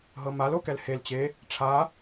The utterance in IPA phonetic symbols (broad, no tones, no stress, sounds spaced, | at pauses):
ɦ ɤ m a l o k ɛ l h e l t͡ɕ e | ʈ͡ʂʰ a